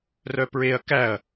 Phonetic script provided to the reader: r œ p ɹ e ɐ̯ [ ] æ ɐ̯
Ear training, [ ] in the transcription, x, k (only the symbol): k